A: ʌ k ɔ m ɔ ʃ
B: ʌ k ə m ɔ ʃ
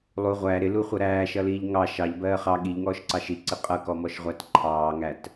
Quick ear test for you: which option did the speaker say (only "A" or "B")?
A